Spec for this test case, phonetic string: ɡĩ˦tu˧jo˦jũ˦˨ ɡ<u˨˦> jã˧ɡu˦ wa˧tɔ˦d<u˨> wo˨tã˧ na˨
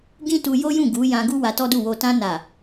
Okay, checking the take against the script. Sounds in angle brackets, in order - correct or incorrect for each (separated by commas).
correct, incorrect